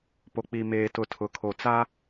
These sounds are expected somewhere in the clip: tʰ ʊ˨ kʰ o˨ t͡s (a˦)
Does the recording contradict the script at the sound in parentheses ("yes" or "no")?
no